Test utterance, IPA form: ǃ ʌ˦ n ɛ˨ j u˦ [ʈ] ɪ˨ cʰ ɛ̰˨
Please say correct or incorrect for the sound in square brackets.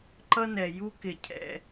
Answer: incorrect